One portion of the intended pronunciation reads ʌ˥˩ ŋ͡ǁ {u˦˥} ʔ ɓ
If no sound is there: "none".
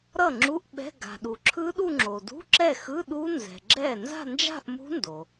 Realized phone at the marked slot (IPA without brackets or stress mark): u˧˥˧